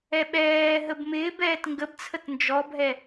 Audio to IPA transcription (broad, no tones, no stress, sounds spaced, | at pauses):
ɛ ɓ ɛː ɦ ə b m ɪː b ɛː t ŋ ɡ ə b t͡sʰ ə t n d͡ʒ ɔ bʱ ɛ